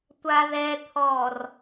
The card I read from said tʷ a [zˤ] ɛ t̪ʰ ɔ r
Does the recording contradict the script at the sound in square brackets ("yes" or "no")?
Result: yes